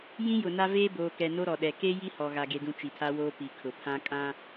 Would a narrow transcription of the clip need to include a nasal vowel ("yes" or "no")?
yes